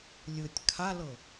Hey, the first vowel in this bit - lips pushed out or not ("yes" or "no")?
no